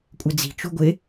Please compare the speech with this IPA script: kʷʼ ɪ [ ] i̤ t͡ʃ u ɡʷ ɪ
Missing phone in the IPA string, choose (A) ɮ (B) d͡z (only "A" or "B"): B